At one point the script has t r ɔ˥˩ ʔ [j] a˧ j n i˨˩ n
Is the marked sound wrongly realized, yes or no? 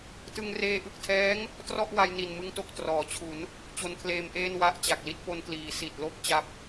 yes